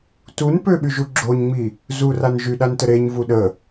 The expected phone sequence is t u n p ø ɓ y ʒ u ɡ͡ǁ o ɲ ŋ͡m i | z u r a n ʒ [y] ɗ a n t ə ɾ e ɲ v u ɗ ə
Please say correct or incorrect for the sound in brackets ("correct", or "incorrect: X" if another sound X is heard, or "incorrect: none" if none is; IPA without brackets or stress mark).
correct